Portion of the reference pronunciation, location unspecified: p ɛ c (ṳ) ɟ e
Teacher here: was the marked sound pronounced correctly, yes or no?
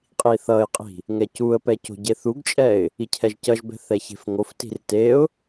no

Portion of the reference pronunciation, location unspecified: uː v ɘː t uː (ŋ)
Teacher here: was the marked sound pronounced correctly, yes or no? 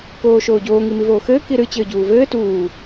no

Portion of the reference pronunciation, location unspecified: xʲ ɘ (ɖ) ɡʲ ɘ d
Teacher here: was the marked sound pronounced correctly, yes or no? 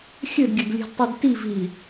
no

